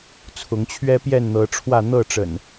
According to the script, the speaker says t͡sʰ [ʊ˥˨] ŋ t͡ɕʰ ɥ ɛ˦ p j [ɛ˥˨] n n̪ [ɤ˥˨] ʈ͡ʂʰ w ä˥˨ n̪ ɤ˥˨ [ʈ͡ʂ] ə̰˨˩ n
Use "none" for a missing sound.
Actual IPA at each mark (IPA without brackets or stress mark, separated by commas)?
ʊ˨˦, ɛ˥˨, ɤ˨˦, ʈ͡ʂ